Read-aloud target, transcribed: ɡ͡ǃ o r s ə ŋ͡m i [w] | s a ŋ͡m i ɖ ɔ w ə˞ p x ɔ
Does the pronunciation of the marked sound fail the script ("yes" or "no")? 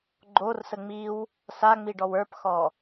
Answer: no